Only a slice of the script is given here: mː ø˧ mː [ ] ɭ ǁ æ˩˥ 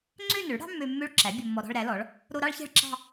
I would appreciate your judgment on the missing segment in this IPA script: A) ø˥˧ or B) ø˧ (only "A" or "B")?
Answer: A